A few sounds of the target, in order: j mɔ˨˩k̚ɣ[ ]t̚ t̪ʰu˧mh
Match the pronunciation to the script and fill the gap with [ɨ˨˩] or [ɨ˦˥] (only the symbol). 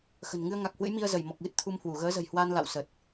ɨ˦˥